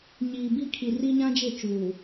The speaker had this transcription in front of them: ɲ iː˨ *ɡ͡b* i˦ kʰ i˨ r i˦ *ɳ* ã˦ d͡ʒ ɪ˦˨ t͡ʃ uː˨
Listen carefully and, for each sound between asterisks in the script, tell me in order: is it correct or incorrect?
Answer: incorrect: b, incorrect: ɲ

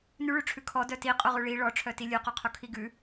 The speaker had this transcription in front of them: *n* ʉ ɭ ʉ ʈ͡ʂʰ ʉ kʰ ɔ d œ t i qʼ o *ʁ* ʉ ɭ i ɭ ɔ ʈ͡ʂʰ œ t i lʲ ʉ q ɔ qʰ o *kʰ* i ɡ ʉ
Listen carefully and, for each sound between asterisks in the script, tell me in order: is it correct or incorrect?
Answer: correct, correct, correct

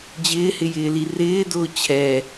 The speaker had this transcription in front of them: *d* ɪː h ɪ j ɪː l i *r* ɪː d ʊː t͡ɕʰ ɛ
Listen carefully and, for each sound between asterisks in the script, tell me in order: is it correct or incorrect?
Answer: incorrect: d͡ʑ, correct

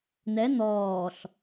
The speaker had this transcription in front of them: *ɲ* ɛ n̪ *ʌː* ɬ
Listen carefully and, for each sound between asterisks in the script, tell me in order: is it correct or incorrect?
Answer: incorrect: n̪, incorrect: ɔː

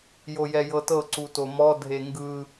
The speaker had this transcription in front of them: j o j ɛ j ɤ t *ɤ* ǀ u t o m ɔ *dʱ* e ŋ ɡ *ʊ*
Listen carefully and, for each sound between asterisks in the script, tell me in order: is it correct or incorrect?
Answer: correct, correct, incorrect: ɯ

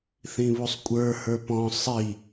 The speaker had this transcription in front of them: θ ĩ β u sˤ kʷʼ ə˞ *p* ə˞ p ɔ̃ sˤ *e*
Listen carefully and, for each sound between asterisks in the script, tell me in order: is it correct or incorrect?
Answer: incorrect: h, incorrect: i

